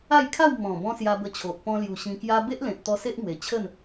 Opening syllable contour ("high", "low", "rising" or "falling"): falling